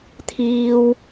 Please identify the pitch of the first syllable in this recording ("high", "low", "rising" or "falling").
high